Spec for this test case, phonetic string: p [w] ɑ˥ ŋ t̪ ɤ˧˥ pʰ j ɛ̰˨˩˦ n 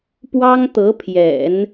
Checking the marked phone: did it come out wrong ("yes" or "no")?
no